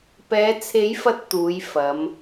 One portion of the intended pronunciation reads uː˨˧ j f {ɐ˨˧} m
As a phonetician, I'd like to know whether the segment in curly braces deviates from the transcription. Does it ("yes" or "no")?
no